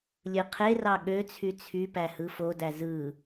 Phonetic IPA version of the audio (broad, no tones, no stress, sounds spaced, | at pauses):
lʲ ɯ qʰ e r ɑ ɠ ø t͡sʰ y t͡sʰ y p æ h ɯ f o d æ z ɯ